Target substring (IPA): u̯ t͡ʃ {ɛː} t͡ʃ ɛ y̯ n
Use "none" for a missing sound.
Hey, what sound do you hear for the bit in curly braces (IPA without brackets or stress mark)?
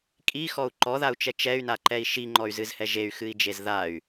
ɛ